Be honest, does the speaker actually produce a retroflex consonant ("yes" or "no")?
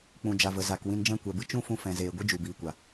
no